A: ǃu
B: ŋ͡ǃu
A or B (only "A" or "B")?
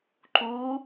A